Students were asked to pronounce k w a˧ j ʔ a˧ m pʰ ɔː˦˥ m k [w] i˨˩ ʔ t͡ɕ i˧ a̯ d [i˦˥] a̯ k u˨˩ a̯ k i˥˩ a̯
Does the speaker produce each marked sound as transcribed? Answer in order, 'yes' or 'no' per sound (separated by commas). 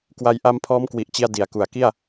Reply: yes, no